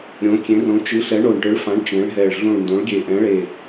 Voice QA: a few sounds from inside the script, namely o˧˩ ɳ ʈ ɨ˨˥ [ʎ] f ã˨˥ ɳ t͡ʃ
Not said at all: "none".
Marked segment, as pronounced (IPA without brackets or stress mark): ɭ